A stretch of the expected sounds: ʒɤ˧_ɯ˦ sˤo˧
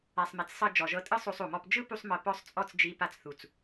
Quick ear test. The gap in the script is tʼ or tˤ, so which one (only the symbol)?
tʼ